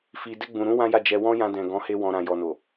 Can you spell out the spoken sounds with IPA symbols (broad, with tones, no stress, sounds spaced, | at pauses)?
f i˨ d ɛ˧ ɡ͡b ũ˨ ɾ ũ˧ w ã˦ j a˦˨ d͡ʒ ɛ˧ w ɔ̃˦ j ã˧ d ɛ̃˨ ɡ ɔ̃˨˦ h e˧ w ɔ̃˨ ɾ ã˨ j ɔ˨ n o˨